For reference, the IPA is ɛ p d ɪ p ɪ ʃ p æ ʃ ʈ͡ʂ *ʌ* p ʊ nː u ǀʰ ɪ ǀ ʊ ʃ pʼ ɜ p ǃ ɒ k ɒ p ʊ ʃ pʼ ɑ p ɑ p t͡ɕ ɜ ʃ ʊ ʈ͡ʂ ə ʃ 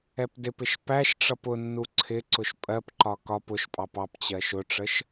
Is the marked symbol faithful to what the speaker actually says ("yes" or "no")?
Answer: yes